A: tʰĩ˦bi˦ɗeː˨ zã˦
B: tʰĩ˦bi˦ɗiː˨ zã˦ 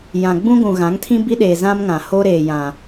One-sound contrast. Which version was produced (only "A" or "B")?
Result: A